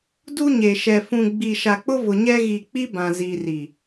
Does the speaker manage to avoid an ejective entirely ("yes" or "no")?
yes